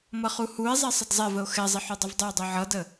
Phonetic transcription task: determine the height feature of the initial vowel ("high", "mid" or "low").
mid